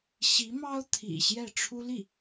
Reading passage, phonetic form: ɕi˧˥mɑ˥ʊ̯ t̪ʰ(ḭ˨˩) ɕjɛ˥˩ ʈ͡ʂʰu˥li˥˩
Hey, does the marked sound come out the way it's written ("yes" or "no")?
yes